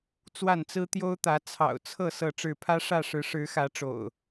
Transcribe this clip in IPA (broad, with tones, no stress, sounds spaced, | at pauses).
t͡s w a˥˨ n t͡s ɹ̩˦ t̪ j o˦ ʊ̯ t̪ ä˨˦ t͡sʰ ɑ̰˨˩ ʊ̯ t͡sʰ ɤ˥˨ s ɤ˥˨ ʈ͡ʂ ɻ̩˥˨ pʰ ä˦ ʂ ä˥˨ ʂ ɻ̩˨˦ ʂ ɻ̩˨˦ x ä˨˦ ʈ͡ʂ o̰˨˩ ʊ̯